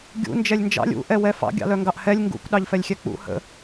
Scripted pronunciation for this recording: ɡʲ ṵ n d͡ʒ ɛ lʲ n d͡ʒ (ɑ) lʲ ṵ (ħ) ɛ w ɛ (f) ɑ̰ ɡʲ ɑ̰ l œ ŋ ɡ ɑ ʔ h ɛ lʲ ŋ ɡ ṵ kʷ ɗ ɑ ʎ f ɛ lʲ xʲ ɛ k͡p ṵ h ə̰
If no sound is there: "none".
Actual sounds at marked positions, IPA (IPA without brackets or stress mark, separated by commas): ɑ̰, ʔ, f